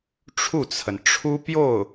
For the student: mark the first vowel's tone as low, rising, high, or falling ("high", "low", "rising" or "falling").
falling